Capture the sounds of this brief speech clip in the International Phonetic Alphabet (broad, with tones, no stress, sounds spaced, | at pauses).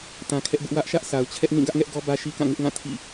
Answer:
t ã˨ kʰ ɛ˦ ʔ b ʊ˦ ʔ w ä˦ ʔ ʃ ä˦ ʔ sʰ a˨ ʊ̯ t͡ɕʰ ɛ˦ ʔ n ĩ˦˨ ɡ ä˦ ʔ ŋ ɛ˦ ʔ ɡ ɔ˦ b ä˦ ʃ i˦ k ã˦˨ ŋ ɪ˦ ʔ ŋ ã˦˨ tʰ ḭ˦˨